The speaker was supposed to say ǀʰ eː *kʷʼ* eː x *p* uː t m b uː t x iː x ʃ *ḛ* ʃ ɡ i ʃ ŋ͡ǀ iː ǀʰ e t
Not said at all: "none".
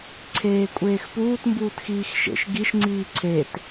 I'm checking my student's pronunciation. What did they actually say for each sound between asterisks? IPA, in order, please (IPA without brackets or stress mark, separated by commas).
kʷʼ, p, ḛ